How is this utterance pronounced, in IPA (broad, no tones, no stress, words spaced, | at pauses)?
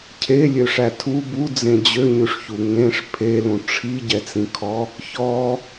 cʰelʲøʂæ tʰu bud͡zẽ d͡ʑøɲʉʂçu ŋẽʂ pʰelũ ʈ͡ʂʰiɟɛt͡sĩkʰɔ | çɔ